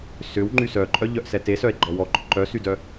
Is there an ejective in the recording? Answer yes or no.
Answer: yes